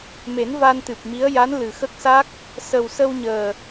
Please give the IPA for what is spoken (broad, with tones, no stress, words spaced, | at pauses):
me˨˩˦n va˧nt̪ɨ˨˩p̚mi˧˥ə̯ ja˧˥nlɨ˨˩xə˦˥k̚sa˦˥k̚ | sə˨˩wsə˧wɲəː˨˩